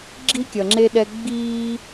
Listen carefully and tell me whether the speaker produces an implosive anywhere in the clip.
yes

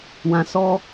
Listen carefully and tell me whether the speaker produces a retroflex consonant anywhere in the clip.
no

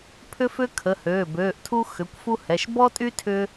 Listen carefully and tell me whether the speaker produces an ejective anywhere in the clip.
yes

